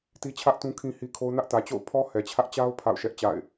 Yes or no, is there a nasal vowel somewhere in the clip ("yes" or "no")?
yes